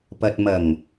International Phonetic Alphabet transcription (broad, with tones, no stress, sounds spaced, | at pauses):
p ɐ˨ t̚ m ɐ˨˩ ŋ